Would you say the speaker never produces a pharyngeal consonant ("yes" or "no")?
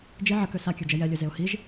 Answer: no